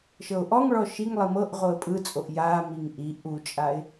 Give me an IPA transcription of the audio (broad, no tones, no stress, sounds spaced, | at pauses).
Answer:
ʃ ɤ ʊ̯ ʔ ɔ ŋ ɭ ɔ ʃ i ŋ lˠ i m ɤ ʔ ʁ o ə̯ pʼ ɯ t͡sʼ o ʔ j a m i ŋ ʔ i ʔ u t͡ʃʼ a ɪ̯